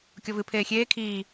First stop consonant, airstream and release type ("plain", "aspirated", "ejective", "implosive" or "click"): plain